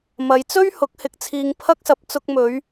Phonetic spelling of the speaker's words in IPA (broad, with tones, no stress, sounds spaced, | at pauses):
m ɐ˨˧ j t͡s ɵ˥ ɥ h ʊ˨˥ k̚ h ɪ˨ k̚ t͡sʰ iː˧ ŋ pʰ ɐ˥ k̚ s ɐ˧ p̚ t͡s ʊ˧ k̚ m ɵ˨˧ ɥ